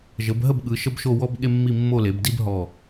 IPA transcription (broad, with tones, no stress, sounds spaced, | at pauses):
ʒ ə˩˧ b ɦ ə˥˧ b ɠ ɯ˩˧ ʃ ə˥ b ʃ o˥˧ w ɔ˥ b ɠ e˥ mː i˥˧ mː o˥˧ l e˩˧ b d i˥ b ɦ ɔ˧˩